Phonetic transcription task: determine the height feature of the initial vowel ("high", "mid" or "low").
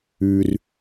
high